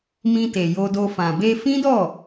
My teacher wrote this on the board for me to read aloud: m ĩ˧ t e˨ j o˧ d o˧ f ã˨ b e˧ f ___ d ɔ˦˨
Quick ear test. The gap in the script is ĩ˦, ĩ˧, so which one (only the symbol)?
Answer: ĩ˦